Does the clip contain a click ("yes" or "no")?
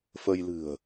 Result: no